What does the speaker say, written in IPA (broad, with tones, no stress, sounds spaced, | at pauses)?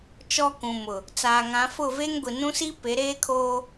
t͡ʃ ɔ˦ k ũ˨ m ʊ˨ | t͡s aː˨ ŋ ã˨˦ f ʊ˦˨ v eː˦ ŋ ɡʷ i˨ n ũ˦ s i˦ p e˨˦ ɾ eː˦ kʰ oː˦